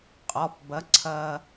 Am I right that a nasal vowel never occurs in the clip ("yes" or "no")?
yes